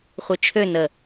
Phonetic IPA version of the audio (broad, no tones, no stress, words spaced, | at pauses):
χʷit͡ʃʰø nə